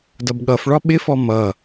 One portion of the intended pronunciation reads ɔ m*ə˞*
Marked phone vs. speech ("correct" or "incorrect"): incorrect